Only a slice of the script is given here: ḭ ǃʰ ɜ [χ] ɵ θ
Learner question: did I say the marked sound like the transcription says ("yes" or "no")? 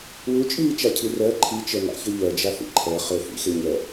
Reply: yes